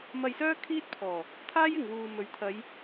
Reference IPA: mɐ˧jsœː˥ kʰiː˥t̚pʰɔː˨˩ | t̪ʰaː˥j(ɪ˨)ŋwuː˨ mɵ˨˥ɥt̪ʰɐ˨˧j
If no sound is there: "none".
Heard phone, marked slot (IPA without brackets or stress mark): ɪ˨